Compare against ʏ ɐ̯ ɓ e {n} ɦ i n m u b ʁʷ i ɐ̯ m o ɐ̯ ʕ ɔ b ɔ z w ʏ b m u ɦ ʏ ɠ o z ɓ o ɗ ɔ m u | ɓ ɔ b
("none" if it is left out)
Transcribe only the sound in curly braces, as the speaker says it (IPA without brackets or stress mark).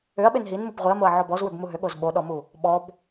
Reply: n